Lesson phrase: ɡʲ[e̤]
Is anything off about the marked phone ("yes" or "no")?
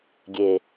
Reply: yes